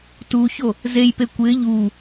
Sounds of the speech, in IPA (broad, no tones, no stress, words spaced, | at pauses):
tuço | zejpe kʷɪː ʎuː